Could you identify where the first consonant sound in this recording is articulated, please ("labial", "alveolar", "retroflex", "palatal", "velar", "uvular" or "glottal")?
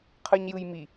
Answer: uvular